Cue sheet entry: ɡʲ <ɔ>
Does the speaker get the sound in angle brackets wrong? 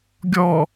no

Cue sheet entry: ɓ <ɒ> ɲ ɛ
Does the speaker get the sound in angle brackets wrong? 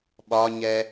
no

